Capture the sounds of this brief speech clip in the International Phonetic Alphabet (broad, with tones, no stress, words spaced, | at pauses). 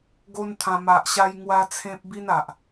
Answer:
ɡo˦nt̪ʰã˧ ma˨ʔɕa˧j ŋwa˦t͡sʰẽ˦p̚ bi˦na˨ʔ